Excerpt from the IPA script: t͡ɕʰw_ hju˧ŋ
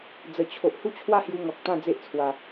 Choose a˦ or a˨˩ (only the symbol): a˦